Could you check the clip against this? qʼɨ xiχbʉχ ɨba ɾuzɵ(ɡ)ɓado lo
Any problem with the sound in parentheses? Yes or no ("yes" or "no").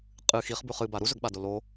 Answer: no